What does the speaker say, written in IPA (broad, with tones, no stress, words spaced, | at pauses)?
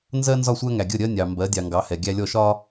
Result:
nzɜ˦nzɒ˦˨sʷæ˦ŋæ˨ ɡʲə˦˨ɾʲɜ˦nʲɑ˨ mbɜ˨˦dʲɑ˨ŋɡɑ˨˦hɛ˨ ɡʲæ˦lʲɔ˦˨ʃɒ˦